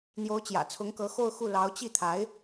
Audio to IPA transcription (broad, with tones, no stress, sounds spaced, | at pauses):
n̪ j o˧˥ ʊ̯ t͡ɕ j ä̰˨˩ t͡sʰ ʊ˧˥ ŋ k ɤ˧˥ x o˥˧ ʊ̯ x u˥˩ l ɑ˧˥ ʊ̯ t͡ɕ i˥˩ t̪ʰ a˧˥ ɪ̯